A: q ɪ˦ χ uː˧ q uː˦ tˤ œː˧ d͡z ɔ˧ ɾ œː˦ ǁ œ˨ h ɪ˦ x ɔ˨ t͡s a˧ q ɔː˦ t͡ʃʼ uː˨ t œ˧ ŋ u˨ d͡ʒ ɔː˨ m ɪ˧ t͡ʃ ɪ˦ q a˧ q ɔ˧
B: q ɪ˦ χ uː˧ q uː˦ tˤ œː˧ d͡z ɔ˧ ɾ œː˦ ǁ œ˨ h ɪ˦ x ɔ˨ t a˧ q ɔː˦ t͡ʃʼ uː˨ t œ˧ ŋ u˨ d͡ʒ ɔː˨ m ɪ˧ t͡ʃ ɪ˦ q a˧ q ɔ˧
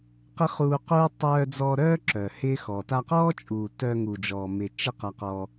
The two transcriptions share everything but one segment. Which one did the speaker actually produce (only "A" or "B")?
B